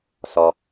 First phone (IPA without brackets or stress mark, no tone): s